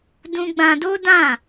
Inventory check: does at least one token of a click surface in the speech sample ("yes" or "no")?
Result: no